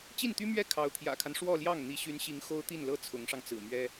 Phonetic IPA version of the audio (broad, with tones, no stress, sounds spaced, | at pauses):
t͡ɕ i˥˩ n t̪ y˥ m ɥ ɛ˥ kʰ ɑ˧˥ ʊ̯ t̪ʰ j ä̰˨˩ kʰ a˦ n ʂ w ɔ˥˧ l j ɑ˥˩ ŋ n̪ i˧˥ ɕ y˧˥ n ɕ i˧˥ ŋ x o˥ ʊ̯ t̪ i˥˩ n l ɤ˥ t͡sʰ ʊ˧˥ ŋ ʂ ɑ˧ ŋ t͡s ɹ̩˨˩ m ɥ ɛ˥